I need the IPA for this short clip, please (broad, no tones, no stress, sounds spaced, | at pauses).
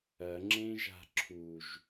ɐ ŋ͡ǁ ẽ ʒ a̤ ǁʰ u ʒ